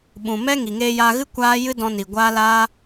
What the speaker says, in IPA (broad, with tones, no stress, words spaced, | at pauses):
ɓũ˨mɛ˦ŋi˨ŋeː˧ ja˧ɣɨ˦ kʷaː˦ jɨ˦dɔ̃˧ni˨ ɡʷaː˦laː˦